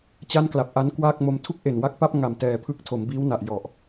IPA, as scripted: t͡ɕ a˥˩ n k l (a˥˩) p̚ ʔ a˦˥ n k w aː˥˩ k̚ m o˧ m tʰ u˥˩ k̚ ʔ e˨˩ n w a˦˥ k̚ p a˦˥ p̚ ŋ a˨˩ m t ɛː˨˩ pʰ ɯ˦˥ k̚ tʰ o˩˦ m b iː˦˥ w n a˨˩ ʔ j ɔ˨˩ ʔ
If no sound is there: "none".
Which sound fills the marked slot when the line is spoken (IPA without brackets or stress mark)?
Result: a˨˩